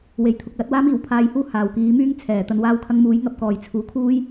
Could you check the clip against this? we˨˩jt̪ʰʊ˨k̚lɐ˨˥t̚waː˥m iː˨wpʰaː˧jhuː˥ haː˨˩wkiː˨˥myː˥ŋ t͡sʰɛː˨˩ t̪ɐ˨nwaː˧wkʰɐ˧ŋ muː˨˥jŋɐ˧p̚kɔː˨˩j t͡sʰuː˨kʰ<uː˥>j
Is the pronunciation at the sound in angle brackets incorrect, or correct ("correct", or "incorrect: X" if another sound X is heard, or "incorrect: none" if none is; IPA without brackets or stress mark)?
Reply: correct